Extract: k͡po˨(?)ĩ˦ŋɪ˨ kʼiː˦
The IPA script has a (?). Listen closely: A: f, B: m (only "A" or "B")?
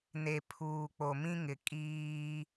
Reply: B